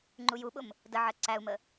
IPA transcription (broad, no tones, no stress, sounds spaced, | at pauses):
ŋ͡ǃ u j u ɓ ʊ m | d ə ʕ ɜ ǀ æ u̯ m ə